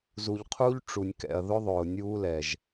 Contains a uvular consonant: yes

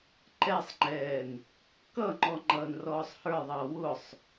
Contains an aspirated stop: no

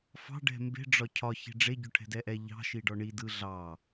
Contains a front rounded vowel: no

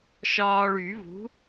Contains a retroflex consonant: yes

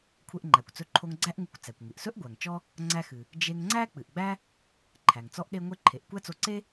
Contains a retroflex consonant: no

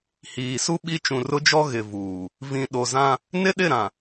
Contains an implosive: yes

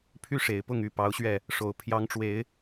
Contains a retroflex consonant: yes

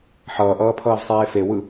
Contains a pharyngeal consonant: yes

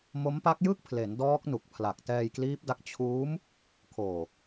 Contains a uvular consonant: no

